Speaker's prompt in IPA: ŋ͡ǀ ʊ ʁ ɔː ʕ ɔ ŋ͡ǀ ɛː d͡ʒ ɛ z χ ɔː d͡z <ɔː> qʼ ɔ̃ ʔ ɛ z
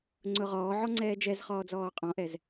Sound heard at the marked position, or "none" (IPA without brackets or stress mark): ɔː